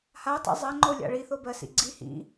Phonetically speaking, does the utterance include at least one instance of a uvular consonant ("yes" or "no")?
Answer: no